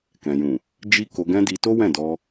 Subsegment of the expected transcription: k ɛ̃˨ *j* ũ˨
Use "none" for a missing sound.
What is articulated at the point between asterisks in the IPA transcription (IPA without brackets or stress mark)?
j